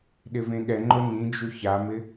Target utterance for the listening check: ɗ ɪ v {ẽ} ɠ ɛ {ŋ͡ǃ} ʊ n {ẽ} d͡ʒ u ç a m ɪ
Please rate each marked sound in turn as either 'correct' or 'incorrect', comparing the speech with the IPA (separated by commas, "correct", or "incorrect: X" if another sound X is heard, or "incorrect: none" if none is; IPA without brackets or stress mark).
correct, correct, incorrect: ĩ